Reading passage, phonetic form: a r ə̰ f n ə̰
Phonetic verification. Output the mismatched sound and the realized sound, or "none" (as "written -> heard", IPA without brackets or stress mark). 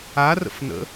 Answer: none